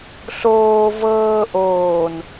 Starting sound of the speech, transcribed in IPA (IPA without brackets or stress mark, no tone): ɬ